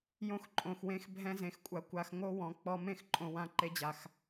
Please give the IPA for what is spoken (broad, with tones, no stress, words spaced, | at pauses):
jõ˧xǃʼõ˨xwẽ˧x bʱɛ̃˧zẽ˨xkʷʼa˨ kʷa˧xŋo˦ wɔ̃˨ k͡pɔ˧mẽ˦x ǃʼõ˧wã˦ ǃe˧d͡ʑa˨x